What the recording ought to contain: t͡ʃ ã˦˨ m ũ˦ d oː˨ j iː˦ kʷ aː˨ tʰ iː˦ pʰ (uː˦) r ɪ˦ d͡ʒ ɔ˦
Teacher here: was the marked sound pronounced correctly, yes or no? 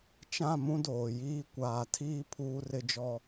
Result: yes